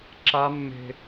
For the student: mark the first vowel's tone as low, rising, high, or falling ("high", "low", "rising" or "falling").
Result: high